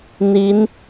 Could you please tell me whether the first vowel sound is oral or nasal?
oral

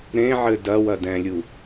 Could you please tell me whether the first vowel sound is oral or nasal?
nasal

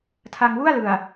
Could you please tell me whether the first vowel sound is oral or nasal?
oral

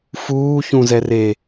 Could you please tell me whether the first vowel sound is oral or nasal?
oral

